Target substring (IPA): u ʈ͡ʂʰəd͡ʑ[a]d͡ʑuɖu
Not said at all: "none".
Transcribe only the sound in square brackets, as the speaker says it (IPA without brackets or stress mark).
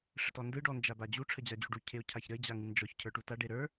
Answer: a